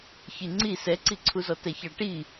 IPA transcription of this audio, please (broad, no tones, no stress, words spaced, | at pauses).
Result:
çiŋ͡ǀi sɛǀiǀʰuzɔ tɛçɑʈi